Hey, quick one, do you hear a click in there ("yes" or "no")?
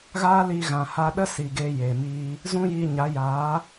no